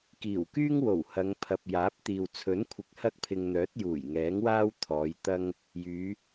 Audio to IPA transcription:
k iː˨˩ w k yː˥ ŋ w o˨˩ w h ɐ˨˧ ŋ pʰ ɐ˨ p̚ j aː˨˥ p̚ t̪ iː˨ w t͡sʰ ɵ˨˥ n kʷʰ ɪ˨˥ k̚ h ɐ˥ k̚ pʰ ɪ˧ ŋ n̪ œː˨˥ t̚ j uː˨˩ j ŋ ɛː˨˥ ŋ w aː˥ w t̪ʰ ɔː˨˧ j t̪ ɐ˥ ŋ | j yː˨˧

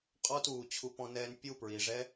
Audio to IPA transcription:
qʼ ɔ˦ t uː˨ t͡ɕʰ u˧ p ɔ̃˧ n ɛː˧ n pʲ u˦˨ p ɹ i˨ ʐ ɛ˦

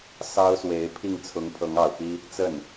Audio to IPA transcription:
s ɑ˥ ʊ̯ s w e˧˥ ɪ̯ pʰ i˥˩ ŋ t͡sʰ ʊ˧˥ ŋ pʰ ɤ˧˥ ŋ ɑ˨˩ ʊ̯ p i˥ | t͡s ə˥˩ n

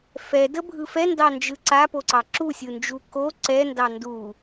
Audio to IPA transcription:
f ɛ d ə bʱ ɯ f ɛ n d ɑ n d͡ʒ ɯ ǀ a p o ǀ ɑ ǁ u sʲ ɯ n d͡ʒ u k o ǀ ɛ n d ɑ n d u

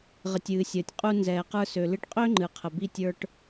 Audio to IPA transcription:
ʁ ə˨ tʲ ɨː˨ sʲ əː˨ tʲ qʼ u˧ n z ɛː˨ q ə˞˧ s ø˨ l ɨ˧ ʈ qʼ ø˦ ŋ͡ǃ ɨ˨ qʰ ə˨ b i˧ tʲ ə˞˧ ʈ

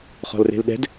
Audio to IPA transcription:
χ ɔ̤ l r e̤ l ɗ ɛ̤ d

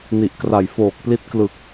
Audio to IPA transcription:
n i˨˩ ʔ k r a˨˩ j f oː˨˩ k̚ p l i˦˥ t̚ k l ɯ˨˩ k̚

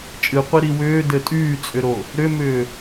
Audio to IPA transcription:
t͡ʃʼ ɨ qʷ i ɾ i w ʏː d ɘ tʼ yː t͡sʼ ʏ ɾ o | ɾ ʏ m ʏː

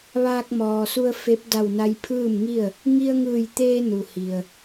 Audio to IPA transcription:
ʋ aː˧ k̚ m ɔː˩ s u˧ ə̯ f e˧˥ p̚ d a˧˩ w n a˧ j pʰ ɯː˥˨ m ŋ i˥˨ ə̯ | ŋ i˧ ə̯ ŋ ɯː˧˩ j t̪ eː˧ n u˩ h i˩ ə̯

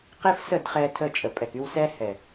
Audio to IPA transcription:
q e˦ f s ə˦˨ d χ ɛ˧ tʰ ə˧ t͡ʃʼ ə˨ pʼ ɛ˨ k y˧ w s ɛ˦ h ɛ˨

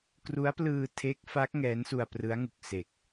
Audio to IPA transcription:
k r u˦˥ a̯ p l ɯː˧ tʰ e˦˥ k̚ f a˦˥ k̚ ŋ ɛː˦˥ n s u˧ a̯ p r ɯ˦˥ a̯ ŋ u˨˩ k̚ s e˨˩ k̚

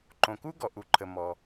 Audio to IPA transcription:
ǃ õ˨ k u˥ ɡ ɔ˨ ʔ u˨ ǃʰ ə˨ m ɔ˨

